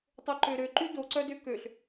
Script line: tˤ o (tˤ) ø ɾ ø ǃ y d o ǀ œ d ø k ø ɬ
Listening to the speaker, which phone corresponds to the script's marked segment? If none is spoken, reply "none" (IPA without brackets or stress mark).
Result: ǃ